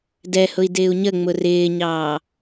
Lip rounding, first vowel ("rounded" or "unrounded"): unrounded